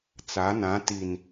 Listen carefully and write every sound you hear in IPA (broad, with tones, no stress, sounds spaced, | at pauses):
t͡s a˨˦ n ã˨˦ t i˨ n